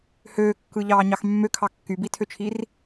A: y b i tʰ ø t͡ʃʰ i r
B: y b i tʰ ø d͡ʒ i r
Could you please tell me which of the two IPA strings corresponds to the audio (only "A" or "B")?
A